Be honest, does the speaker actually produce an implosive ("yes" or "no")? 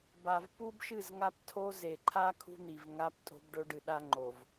yes